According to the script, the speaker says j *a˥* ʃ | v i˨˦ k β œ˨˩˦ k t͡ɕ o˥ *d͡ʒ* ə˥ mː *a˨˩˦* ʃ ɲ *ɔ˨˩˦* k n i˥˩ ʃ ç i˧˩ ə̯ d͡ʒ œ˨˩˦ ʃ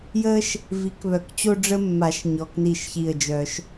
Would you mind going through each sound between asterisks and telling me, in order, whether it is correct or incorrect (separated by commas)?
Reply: incorrect, incorrect, correct, incorrect